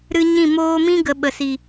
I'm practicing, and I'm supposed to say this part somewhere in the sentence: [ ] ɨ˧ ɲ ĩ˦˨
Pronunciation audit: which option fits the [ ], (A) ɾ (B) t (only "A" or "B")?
A